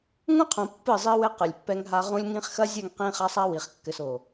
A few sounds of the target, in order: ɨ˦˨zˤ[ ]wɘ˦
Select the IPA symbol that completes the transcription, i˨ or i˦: i˦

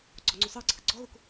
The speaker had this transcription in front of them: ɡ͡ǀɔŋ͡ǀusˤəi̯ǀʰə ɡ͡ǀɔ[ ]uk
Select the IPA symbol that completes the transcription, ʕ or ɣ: ɣ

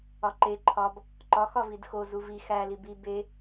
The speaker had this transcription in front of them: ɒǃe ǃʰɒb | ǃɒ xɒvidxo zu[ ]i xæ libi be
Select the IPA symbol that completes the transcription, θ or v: v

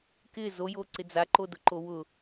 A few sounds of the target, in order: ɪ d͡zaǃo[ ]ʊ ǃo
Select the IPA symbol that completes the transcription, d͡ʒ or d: d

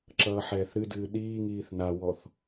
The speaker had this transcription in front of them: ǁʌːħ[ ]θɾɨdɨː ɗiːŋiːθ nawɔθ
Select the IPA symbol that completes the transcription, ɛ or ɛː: ɛː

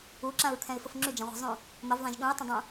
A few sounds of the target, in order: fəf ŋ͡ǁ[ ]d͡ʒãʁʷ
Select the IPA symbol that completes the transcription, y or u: y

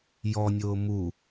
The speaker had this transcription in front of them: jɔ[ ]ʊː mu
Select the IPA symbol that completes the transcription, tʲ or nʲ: nʲ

